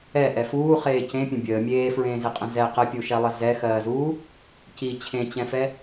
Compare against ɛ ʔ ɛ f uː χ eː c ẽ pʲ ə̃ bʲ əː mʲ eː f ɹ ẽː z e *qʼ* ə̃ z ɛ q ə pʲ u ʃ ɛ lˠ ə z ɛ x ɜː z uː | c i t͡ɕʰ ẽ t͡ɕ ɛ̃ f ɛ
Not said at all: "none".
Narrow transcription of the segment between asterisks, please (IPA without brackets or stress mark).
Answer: qʼ